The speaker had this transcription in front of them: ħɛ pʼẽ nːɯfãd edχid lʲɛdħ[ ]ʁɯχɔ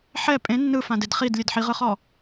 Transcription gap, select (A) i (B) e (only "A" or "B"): A